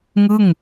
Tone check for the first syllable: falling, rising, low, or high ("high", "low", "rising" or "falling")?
falling